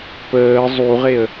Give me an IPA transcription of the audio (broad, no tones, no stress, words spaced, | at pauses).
pəː zˤuʁeə̯